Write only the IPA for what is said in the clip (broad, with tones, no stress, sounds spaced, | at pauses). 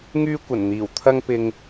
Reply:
ŋ yː˥ kʷ ɐ˨˩ n n̪ iː˨˩ w t̪ʰ ɐ˥ ŋ p ɪ˧ ŋ